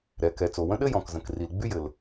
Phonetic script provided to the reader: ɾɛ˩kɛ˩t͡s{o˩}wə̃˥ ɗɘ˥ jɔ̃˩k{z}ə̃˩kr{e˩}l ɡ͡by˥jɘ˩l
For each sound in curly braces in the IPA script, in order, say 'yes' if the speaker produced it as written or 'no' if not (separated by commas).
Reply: yes, yes, no